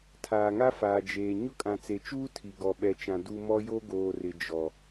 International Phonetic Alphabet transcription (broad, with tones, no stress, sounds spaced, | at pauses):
tʰ aː˨ ŋ a˦ f aː˨ d͡ʒ eː˨ ɲ ʊ˦ kʼ ã˨ t͡s e˨ t͡ʃ uː˦ tʰ i˨ ɡ ɔ˨ ɓ ɛ˨ t͡ʃ ã˨ d u˦ m ɔ˦ j o˦ ɡ oː˨ r ɪ˨ d͡ʒ ɔ˨